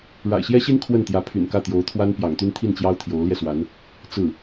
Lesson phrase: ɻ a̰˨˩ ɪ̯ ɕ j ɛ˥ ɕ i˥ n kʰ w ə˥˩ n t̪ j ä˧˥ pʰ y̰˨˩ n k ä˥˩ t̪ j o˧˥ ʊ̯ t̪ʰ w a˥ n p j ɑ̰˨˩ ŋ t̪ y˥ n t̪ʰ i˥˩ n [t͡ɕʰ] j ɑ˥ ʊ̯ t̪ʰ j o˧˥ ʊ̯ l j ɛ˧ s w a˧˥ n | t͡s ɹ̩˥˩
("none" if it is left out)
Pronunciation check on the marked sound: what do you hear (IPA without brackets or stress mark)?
t͡ɕ